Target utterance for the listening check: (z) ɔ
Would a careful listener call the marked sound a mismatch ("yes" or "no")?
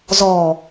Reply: no